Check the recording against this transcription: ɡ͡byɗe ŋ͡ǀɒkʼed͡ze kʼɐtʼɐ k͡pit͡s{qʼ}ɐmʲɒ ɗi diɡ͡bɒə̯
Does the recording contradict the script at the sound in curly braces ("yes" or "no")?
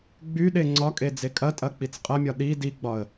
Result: no